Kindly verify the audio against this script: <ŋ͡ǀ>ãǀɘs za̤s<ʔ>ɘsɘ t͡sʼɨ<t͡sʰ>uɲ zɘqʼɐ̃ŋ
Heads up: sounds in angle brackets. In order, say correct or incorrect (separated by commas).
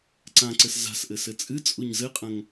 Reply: incorrect, correct, incorrect